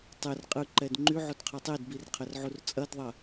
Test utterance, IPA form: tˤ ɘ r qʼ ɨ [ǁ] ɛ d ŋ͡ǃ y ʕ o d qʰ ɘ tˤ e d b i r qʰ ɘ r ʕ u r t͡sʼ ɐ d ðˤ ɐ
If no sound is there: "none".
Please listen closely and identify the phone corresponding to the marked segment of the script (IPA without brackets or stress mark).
ǃ